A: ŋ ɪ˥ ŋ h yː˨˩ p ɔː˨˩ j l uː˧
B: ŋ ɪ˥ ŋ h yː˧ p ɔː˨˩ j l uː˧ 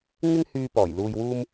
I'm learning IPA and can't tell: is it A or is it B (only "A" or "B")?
B